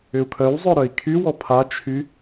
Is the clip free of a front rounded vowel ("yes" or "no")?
no